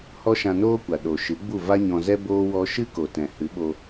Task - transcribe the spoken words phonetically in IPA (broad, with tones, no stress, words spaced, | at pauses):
hɔ˦ʃã˧noː˦kʷa˨ ɗo˨ ʃɨ˨˦ɡ͡bu˦˨ va˦ɲɔ̃˧zɛ˦ boː˦wɔ˦ ʃɨ˦ko˨tɛ̃˨ hɨ˨˦ɓo˧